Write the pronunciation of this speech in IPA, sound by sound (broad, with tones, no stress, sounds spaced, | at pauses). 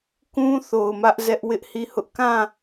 k ũ˦ θ o˨ ʊ̯ m ä˦ ʔ z ɛ˦ ʔ w ɪ˦ ʔ h i˦˨ h ʊ˦ ʔ k ã˦˨